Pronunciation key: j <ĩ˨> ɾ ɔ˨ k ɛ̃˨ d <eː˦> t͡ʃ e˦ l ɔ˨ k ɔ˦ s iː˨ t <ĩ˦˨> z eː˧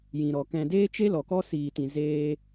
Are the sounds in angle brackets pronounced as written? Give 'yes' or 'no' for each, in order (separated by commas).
yes, yes, no